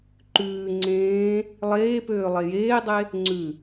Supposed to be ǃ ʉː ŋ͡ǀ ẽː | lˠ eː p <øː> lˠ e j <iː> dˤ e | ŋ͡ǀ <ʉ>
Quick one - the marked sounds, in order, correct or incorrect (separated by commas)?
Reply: correct, incorrect, correct